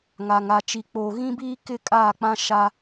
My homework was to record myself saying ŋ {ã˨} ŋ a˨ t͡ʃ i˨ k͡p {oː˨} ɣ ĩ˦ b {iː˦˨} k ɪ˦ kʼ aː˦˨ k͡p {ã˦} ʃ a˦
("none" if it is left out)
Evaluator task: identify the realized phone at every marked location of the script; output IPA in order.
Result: a˨, oː˨, iː˦, ã˦

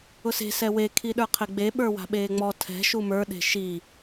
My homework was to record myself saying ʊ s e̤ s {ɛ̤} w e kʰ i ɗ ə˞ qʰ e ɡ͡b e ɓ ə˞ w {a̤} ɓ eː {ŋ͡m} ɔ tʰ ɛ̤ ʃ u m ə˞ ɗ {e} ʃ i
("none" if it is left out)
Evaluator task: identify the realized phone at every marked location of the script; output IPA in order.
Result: ɛ, a̤, ŋ͡m, e̤

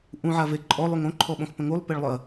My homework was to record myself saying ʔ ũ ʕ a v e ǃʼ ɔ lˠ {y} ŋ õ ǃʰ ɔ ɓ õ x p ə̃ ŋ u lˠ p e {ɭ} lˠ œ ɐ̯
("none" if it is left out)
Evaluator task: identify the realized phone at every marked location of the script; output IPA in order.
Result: y, ɭ

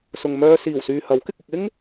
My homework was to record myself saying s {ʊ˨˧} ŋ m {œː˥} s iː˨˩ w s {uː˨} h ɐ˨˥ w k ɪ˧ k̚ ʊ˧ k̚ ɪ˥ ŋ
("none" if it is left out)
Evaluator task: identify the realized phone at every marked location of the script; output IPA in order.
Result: ʊ˨, œː˧, yː˨

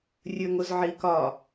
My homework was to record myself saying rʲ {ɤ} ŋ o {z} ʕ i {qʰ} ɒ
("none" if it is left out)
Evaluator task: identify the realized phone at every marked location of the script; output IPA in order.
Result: ɵ, z, k

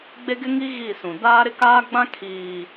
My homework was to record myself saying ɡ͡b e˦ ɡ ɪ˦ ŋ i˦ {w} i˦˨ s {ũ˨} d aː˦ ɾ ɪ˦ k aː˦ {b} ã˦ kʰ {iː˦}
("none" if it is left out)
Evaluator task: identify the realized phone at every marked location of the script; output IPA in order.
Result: ɣ, ũ˨, ɡ͡b, iː˨

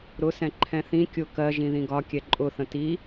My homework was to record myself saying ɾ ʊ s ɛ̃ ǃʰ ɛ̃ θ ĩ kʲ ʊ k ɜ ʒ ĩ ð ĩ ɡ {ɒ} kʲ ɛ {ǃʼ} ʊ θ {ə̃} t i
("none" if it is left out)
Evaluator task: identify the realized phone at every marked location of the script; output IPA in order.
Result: ɒ, ǃʼ, ə̃

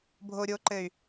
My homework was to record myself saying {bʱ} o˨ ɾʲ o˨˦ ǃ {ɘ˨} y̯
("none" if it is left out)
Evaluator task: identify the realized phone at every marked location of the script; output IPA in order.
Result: bʱ, ɘ˨

